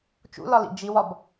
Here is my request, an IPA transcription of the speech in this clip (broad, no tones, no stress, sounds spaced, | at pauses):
t͡ʃ ṵ l ɒ l ḭ d͡ʒ i w ɒ b